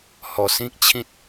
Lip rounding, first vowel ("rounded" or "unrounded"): rounded